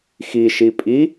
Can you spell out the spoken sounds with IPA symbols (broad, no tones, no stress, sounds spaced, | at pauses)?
x i ʃ i pʼ i